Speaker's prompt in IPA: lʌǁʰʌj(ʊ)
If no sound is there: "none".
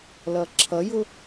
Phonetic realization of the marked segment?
ʊ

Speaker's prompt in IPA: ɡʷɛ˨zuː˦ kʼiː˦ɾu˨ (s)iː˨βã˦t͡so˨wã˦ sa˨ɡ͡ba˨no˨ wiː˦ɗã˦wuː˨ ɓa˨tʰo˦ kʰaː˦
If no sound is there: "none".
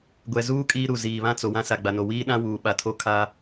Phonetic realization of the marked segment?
z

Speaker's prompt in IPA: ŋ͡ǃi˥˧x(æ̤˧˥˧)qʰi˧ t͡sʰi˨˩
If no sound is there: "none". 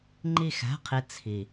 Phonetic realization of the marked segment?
æ̤˧˥˧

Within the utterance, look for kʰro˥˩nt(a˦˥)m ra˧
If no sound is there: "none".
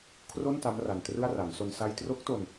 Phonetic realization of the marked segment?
a˦˥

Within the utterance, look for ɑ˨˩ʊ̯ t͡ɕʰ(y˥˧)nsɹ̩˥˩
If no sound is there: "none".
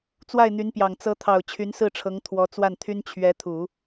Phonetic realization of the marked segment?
y˧˥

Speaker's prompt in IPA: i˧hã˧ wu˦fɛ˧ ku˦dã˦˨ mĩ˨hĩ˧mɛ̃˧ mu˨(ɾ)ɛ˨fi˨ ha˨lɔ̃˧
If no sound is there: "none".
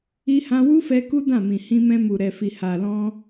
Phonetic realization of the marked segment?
ɾ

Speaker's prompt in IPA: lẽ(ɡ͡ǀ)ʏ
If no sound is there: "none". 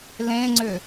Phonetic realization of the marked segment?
ŋ͡ǀ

